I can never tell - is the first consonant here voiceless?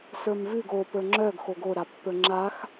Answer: yes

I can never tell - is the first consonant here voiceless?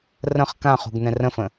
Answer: no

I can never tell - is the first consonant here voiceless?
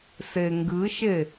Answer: yes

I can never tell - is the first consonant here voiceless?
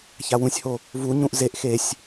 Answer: yes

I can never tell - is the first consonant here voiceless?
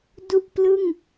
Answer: no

